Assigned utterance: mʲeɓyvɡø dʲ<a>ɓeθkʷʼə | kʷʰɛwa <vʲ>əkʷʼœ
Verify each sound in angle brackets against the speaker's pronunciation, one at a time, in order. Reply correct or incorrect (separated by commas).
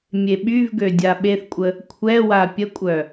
correct, incorrect